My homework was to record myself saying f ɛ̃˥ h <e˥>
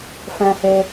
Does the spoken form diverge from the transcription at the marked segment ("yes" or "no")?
no